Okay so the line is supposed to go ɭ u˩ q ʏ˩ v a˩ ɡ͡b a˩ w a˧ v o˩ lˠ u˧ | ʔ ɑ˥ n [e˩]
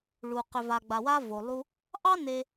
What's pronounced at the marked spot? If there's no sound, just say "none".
e˧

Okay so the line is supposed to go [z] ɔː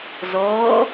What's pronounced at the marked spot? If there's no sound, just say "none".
z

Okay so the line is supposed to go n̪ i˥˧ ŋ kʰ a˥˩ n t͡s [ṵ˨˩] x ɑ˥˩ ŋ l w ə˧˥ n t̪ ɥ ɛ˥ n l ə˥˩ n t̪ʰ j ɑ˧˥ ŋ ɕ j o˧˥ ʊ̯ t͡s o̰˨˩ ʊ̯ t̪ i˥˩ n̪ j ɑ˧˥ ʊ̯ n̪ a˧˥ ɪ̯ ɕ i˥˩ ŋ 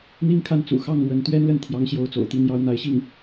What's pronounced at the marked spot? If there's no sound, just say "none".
ṵ˨˩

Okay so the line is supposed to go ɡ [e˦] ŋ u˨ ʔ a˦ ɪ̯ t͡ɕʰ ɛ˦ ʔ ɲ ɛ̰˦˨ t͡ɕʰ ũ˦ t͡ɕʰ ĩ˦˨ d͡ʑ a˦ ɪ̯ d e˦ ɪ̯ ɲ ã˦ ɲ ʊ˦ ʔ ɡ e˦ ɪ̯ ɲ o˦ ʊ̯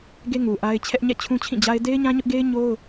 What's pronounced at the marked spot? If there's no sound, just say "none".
e˦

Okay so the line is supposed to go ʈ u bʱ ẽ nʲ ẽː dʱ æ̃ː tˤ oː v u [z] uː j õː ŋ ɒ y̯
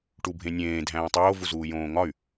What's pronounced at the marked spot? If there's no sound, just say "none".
z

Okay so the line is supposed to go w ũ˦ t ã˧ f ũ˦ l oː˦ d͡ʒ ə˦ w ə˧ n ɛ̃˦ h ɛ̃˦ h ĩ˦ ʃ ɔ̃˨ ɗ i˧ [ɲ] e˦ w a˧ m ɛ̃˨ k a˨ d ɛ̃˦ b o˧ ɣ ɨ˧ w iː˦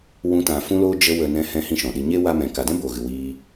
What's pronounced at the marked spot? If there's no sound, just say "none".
ɲ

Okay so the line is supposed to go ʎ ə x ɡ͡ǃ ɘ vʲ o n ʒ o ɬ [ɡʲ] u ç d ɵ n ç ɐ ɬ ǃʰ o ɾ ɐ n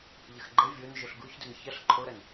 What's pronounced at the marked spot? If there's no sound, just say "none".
ɡ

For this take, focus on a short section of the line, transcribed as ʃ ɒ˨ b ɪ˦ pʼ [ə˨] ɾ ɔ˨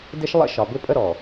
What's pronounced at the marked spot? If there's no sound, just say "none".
ə˦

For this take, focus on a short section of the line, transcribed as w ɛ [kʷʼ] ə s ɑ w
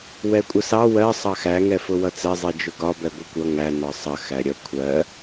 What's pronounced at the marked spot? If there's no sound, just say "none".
kʷʼ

